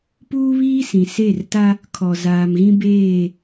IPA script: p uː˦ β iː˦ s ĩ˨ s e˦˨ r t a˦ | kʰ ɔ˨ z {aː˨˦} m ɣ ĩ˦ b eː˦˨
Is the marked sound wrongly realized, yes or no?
yes